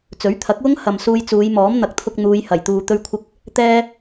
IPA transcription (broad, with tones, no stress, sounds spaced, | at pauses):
t͡s ɵ˨˥ ɥ t̪ʰ ɐ˨˥ k̚ w ʊ˥ ŋ h ɐ˨ m s uː˧ j t͡s uː˨˧ j m ɔː˨˥ m n̪ ɐ˨ k̚ t̪ʰ ʊ˧ k̚ n̪ uː˨˧ j h ɐ˨˩ j t̪ uː˨ t̪ ɵ˧ ɥ kʷʰ ɪ˧ k̚ | t̪ ɛː˧